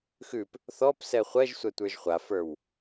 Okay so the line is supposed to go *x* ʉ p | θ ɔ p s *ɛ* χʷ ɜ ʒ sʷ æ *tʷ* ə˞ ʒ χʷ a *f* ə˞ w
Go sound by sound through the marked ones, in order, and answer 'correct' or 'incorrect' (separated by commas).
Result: correct, correct, correct, correct